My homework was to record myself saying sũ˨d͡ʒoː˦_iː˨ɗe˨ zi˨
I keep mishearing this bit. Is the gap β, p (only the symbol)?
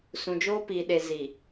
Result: p